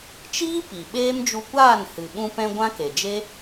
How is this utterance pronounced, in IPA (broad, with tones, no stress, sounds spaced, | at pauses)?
t͡ʃ iː˦ p i˨ ɓ eː˦ m d͡ʒ u˧ kʷ aː˦˨ n h ɨ˨ ɓ ũ˧ p ɛ̃˧ ɡʷ ã˦ k e˨ d͡ʒ e˦